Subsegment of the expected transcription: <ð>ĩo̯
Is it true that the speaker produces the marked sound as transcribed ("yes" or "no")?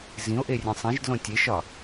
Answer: no